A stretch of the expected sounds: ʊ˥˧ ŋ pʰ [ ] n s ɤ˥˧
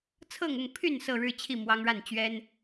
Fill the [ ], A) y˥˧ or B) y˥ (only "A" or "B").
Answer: A